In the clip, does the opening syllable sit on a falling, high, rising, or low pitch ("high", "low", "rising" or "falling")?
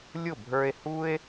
falling